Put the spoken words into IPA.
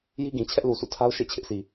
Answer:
j i˦ ɡ ĩ˨ t͡ɕʰ ɛ˦ ʔ l u˨ sʰ ṵ˦˨ tʰ a˦ ʊ̯ ʃ ḛ˦˨ t͡ɕʰ ɪ˦ ʔ sʰ i˨

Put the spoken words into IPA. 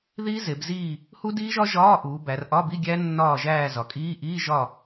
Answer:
ð iː˦˥ z e˩˧ b z iː˦˨ | h u˦˥ d iː˦˥ ʒ ɒ˦˥ ʒ ɒː˧˥˧ ʔ uː˩˧ b æ˩˧ r ʔ ɒ˧˥˧ b i˧˥˧ ɡʲ æ˦˥ nː ɒː˦˨ ʒ æː˦˨ z ɒ˩˧ kʼ iː˧˥˧ ʔ iː˧˥˧ ʒ ɒ˦˨

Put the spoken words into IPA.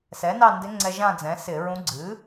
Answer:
s ɛ˩˥ n ɑ˥˧ n d ɪ˧˥ ŋ͡ǀ ɛ˧ ʒ ã˥˧ d͡z ɛ̃˩˥ s ɪ˧˩˧ ɹ ũ˧˥ ɡ͡ǀ ɨ˩˥

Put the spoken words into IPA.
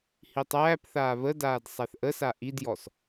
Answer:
h i tˤ æː p θ aː β ə d aː d sˤ æ θ ʔ ə s a ʔ i d j ɔ s

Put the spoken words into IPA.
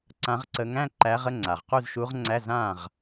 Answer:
ǀ ã˧˥ ʁ ǀ ə˧˥ ŋ æ̃˧˥˧ ǃ æ˧˥ ʁ ə˧˥˧ ŋ͡ǀ a˨˩ ʁ q u˥˨ z ʃ u˧˥ ʁ ŋ͡ǀ æ˧˥˧ z ã˥˨ ʁ

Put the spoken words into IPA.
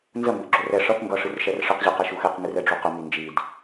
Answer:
n z ə m b ə ʔ ɡ͡ǁ o r ɛ ʂ ʌ θ ŋ ɡ ʌ ʂ ɨ r ʃ ɛ r ʂ ə q ʑ ɨ q ɛ ʃ u x ɛ q ŋ ɨ r ɛ ɖ͡ʐ u q ə m i n d͡ʒ i d

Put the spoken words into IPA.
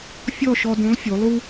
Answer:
fʲ ɔ˥˨ ʃ ɔ˧ d ũ˨˥ lˠ fʲ u˩˧ lˠ u˥

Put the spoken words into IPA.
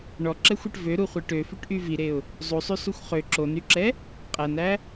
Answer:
ɳ ɔ ǁ ɛ xʷ e ʈ v ø ɾ u χʷ i ʈ ø f y ʈ ʔ y v i ɾ e ʊ̯ | zˤ u sˤ y s u xʷ χ ø ǁ o n y ǁ ɛ | qʼ æ n æ

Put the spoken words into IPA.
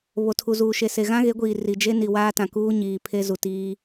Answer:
β o˨ tʰ u˨ z uː˨ ʃ e˨ s e˨ ɣ ã˦ ɣ e˨˦ ɡʷ iː˨ r i˨ d͡ʒ e˦ n i˨ w aː˦ t ã˨ k uː˦ ɲ iː˨ pʰ e˦ z u˨ t iː˦

